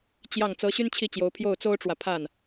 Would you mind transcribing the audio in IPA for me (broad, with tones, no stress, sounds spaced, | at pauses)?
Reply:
t͡ɕ j ɑ˥˩ ŋ t͡s ɤ˧˥ ɕ y˥ n t͡ɕʰ i˥˩ t͡ɕ j o˧˥ ʊ̯ pʰ j o˥˩ ʊ̯ t͡s o˥ ʊ̯ ʈ͡ʂ w ä˨ pʰ a˥˩ n